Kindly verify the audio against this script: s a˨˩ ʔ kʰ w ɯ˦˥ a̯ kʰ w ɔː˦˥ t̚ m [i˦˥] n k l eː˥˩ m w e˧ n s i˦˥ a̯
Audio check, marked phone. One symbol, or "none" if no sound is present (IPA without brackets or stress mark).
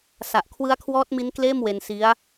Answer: i˦˥